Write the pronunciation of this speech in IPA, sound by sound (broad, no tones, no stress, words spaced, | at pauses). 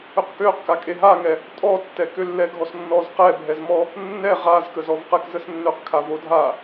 øqkøq kakʼeɦaŋɛ | tʼɔtːɛ kølːɛɡʱɔsnːɔz qɛbʱɛzmɔ | nːɛ ʁazkəzɔv qɛkzəsnːøqkʰa vodʱa